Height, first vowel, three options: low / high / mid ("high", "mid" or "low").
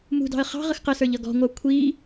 high